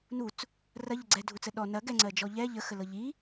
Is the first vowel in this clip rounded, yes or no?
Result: yes